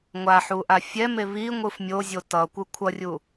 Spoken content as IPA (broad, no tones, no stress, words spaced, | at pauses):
ŋʷaħuʔa fʲɛme βiŋʷɯf mʲozʲo tʌkʷɯ kʷʰʌrʲu